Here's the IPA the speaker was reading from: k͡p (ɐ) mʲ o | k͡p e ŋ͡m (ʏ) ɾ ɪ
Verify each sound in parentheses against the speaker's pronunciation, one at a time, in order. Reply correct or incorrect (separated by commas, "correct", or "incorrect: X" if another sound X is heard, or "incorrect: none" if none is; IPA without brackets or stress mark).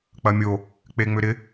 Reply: correct, correct